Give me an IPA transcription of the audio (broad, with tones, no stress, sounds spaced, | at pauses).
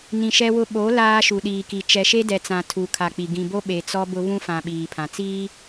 n ĩ˨ ʃ ɛ˦ w ʊ˦ ɓ o˨˦ l aː˦ ʃ u˨ ɗ iː˨ k i˨ t͡ʃ ɛ˨ ʃ e˦ d ɛ˨ t͡s ã˨ tʰ u˨ kʰ a˨ k͡p i˨ ɡ ĩ˨ b o˦ ɓ e˨ t͡s ɔ˦ b ʊ˦ β ũ˦ f ã˨ ɓ iː˨ pʰ ã˨ t͡s iː˦